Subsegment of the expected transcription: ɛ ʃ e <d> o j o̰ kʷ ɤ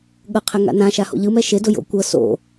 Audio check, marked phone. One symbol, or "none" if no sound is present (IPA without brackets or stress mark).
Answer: d